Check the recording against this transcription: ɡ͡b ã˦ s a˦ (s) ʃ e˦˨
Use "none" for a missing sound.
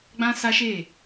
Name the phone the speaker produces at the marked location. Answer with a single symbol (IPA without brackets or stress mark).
none